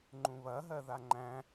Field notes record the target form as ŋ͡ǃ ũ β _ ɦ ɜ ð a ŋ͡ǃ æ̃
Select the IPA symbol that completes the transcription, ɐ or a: ɐ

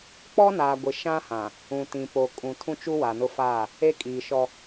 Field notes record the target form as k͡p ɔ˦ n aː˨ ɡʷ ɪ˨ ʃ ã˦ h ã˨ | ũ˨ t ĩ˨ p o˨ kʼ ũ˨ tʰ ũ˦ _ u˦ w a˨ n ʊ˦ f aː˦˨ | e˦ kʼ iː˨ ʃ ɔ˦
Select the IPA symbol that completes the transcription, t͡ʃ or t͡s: t͡ʃ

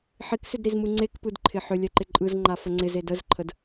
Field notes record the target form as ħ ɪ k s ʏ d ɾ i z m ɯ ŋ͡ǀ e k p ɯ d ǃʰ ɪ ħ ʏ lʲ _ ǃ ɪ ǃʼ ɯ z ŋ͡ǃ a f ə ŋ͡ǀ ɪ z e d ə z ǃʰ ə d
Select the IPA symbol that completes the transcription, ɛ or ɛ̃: ɛ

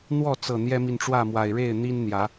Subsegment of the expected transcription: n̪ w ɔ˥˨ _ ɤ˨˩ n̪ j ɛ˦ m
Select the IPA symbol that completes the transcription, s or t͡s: t͡s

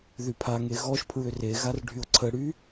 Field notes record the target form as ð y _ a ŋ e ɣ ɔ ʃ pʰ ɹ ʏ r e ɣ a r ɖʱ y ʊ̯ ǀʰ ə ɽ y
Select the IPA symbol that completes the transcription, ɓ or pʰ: pʰ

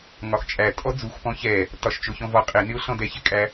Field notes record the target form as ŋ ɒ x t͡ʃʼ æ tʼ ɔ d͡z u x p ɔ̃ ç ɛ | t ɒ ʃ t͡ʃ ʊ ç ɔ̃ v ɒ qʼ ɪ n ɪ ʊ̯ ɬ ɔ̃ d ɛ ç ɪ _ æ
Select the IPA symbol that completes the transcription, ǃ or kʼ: kʼ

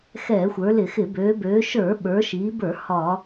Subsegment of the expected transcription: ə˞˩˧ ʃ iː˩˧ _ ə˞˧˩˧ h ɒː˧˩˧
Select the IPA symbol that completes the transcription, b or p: b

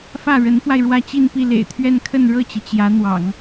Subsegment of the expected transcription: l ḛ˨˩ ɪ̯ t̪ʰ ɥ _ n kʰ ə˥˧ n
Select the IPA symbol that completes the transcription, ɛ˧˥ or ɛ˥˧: ɛ˥˧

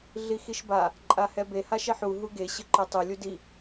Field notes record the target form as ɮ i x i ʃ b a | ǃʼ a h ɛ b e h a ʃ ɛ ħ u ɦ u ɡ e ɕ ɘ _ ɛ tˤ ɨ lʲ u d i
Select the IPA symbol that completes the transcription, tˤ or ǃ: ǃ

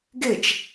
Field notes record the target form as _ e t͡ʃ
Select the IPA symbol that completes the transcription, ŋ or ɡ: ɡ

